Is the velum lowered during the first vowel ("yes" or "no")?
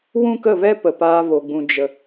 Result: yes